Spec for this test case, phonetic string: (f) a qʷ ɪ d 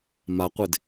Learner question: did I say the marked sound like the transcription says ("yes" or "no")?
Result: no